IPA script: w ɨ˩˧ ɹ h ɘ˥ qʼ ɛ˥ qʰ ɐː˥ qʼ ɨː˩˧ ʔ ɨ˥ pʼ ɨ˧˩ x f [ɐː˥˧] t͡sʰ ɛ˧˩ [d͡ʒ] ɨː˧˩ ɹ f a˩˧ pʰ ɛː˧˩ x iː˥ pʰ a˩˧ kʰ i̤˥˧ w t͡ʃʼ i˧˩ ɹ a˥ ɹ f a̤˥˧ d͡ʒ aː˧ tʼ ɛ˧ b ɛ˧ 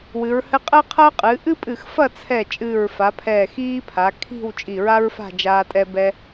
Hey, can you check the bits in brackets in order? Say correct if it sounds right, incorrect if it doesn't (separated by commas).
incorrect, incorrect